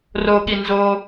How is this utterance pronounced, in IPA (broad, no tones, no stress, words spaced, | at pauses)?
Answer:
roɠi nzo